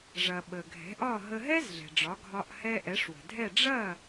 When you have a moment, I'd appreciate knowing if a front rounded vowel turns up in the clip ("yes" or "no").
no